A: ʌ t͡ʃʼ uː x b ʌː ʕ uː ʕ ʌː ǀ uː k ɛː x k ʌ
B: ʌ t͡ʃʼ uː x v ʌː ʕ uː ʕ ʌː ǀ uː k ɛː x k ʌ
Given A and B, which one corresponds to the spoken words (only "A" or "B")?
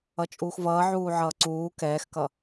B